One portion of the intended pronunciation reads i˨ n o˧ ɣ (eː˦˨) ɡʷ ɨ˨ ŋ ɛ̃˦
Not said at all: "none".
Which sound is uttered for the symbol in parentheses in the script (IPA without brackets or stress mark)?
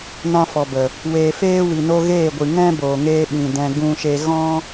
eː˦˨